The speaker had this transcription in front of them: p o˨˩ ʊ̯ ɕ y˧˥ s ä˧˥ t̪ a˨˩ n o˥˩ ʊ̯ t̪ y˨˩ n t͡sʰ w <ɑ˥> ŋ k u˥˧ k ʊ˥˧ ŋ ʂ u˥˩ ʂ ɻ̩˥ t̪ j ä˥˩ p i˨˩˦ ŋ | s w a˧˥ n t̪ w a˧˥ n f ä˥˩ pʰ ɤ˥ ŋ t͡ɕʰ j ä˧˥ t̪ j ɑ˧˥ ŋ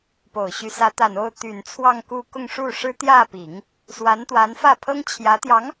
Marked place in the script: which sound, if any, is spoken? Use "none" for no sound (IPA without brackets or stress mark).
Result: ɑ˥˧